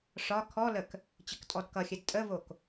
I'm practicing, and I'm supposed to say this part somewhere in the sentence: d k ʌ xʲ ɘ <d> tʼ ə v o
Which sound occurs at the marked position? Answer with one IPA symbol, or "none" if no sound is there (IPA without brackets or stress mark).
d